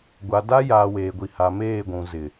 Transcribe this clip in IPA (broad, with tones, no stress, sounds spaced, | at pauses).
ɡʷ a˨ d a˦ j aː˨ w eː˨ ɡʷ i˨ h a˨ m eː˦˨ ɡʷ ũ˨ z ɪ˨